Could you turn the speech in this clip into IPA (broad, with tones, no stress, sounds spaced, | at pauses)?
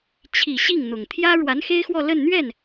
t͡ɕʰ i˨˩ ɕ i˥˩ ŋ n̪ ʊ˨˩ ŋ t̪ʰ j ä˥ ɻ w a˧˥ n x e˥ ɪ̯ x w ɔ˥˧ l ə˥˧ n n̪ ɥ ɛ˥˩ n